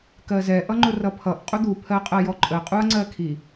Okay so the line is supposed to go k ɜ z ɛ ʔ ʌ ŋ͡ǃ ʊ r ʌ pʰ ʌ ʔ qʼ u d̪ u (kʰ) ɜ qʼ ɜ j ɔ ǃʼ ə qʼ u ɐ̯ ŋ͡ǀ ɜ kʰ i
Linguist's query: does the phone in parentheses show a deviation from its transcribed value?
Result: yes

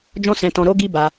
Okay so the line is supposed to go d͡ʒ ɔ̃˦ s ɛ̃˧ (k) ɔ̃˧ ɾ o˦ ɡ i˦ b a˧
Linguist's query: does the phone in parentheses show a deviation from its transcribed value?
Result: yes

